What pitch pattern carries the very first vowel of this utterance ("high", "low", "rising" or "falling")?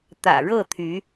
low